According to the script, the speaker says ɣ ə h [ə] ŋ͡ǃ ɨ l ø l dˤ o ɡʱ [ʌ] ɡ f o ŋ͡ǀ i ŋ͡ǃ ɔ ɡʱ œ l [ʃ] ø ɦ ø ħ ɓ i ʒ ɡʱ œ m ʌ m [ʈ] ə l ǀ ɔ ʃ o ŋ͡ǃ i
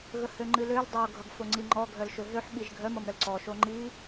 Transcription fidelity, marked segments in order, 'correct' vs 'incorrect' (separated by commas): incorrect, correct, correct, incorrect